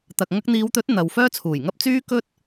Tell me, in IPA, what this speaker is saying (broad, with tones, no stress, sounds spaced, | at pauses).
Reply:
t̪ ɐ˨ k̚ ŋ ɐ˧ k̚ n̪ iː˨˧ w t̪ ɵ˨˥ t̚ n̪ ɐ˨ w f œː˥ t͡sʰ uː˨˩ j ŋ ɐ˥ p̚ t͡s yː˥ k ɵ˥ t̚